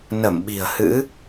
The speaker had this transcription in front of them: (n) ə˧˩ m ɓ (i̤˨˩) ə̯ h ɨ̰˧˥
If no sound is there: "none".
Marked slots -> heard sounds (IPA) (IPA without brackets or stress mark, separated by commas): n, i̤˨˩